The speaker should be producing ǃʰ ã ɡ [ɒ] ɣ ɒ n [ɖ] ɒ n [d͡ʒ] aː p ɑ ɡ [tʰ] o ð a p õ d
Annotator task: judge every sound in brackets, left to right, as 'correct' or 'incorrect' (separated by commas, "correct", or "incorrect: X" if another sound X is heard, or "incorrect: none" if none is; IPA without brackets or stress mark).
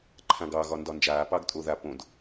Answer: incorrect: ɑ, incorrect: d, correct, incorrect: tʼ